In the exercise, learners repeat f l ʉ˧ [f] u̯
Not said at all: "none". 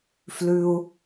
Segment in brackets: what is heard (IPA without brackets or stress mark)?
none